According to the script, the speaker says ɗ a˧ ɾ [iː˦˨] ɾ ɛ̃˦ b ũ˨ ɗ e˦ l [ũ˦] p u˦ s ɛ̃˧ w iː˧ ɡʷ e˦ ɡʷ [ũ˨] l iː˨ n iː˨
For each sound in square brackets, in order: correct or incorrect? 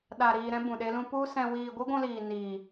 incorrect, correct, incorrect

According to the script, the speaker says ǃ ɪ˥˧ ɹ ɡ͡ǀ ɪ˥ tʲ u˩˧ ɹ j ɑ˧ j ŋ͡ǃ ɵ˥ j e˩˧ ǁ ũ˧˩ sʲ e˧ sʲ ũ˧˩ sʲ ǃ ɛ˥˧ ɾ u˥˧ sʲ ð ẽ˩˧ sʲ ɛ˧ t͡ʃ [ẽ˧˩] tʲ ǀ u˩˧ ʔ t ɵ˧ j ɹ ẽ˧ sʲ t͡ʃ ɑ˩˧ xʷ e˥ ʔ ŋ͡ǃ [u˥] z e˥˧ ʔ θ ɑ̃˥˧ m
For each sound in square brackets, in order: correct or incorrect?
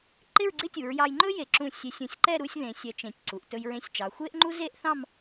correct, correct

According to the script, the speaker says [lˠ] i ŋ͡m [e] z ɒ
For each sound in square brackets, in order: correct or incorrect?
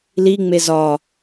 incorrect, correct

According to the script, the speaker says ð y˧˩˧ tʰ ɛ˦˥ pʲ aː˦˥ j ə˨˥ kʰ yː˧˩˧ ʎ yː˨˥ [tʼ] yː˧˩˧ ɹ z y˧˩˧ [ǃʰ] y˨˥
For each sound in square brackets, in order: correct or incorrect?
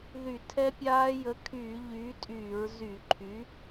correct, correct

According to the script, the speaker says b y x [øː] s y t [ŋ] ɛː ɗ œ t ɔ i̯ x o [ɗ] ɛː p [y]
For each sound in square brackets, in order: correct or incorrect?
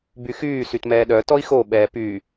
incorrect, incorrect, incorrect, incorrect

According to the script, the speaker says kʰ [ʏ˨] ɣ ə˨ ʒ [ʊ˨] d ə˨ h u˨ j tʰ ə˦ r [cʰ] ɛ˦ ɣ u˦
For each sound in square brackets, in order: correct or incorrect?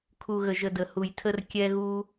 incorrect, incorrect, incorrect

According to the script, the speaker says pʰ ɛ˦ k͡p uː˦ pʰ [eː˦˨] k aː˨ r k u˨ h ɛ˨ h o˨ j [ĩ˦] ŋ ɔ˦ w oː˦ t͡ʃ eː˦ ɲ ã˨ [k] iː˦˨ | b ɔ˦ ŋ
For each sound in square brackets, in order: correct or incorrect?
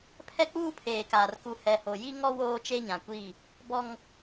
incorrect, incorrect, incorrect

